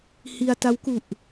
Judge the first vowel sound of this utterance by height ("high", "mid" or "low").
high